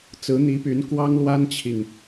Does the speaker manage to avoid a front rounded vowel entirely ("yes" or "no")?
no